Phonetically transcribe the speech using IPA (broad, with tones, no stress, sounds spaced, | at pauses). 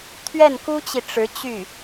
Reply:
t̪ʰ ɥ ɛ˥˩ n k u˥ t͡ɕ i˨ ʈ͡ʂ ɻ̩˧˥ t͡ɕ y˥˩